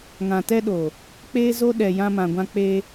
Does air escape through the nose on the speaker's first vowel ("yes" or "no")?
yes